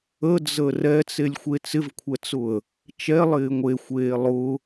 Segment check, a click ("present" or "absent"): absent